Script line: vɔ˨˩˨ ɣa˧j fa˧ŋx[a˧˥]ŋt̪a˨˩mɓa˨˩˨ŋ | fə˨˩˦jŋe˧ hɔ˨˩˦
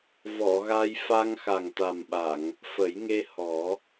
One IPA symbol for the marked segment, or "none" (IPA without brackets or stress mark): a˨˩